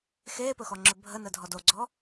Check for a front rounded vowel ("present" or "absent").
absent